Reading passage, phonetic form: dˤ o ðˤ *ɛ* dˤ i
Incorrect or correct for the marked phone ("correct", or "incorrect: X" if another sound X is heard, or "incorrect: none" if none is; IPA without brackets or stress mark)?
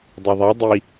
correct